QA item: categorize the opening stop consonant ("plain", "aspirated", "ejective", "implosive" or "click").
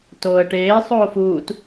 plain